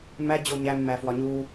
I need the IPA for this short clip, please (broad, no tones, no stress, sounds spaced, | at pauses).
m æ d͡ʑ o ɲ æ mː æ f w ɒ ɲ u